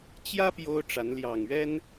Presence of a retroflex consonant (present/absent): present